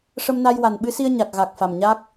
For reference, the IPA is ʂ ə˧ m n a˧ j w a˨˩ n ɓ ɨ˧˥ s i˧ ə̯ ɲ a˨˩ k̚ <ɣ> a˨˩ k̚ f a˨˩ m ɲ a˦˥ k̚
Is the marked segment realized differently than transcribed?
no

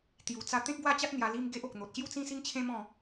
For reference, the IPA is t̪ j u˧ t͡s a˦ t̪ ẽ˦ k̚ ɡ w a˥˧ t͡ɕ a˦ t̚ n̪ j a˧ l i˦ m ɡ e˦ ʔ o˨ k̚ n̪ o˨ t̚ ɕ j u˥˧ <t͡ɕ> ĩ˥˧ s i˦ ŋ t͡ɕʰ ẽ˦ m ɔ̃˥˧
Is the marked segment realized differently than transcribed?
yes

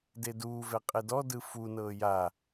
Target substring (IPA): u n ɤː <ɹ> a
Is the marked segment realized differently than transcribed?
yes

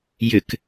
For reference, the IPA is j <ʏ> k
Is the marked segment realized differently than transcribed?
no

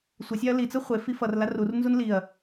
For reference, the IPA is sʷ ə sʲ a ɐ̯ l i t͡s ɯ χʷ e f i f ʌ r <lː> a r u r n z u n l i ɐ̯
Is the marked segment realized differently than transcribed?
yes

